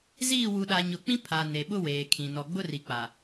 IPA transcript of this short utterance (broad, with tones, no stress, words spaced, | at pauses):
ziː˦˨ wu˨ɗa˨ɲʊ˨k͡pĩ˦ pʰa˨ ne˨ɓʊ˦weː˨kʰĩ˨ nɔ˨ɡ͡bʊ˦ri˨k͡pa˨